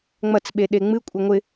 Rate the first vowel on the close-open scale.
open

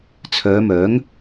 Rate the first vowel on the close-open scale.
mid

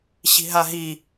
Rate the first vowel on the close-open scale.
close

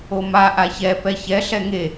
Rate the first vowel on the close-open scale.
mid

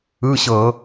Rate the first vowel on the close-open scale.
close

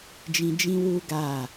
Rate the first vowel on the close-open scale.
close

